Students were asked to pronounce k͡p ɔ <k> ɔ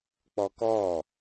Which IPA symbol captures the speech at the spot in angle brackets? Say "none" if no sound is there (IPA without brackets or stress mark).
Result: k